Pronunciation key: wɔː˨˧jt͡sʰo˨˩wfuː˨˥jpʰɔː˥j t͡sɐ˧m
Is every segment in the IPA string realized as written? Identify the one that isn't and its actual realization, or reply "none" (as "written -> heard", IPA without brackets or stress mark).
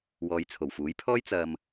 none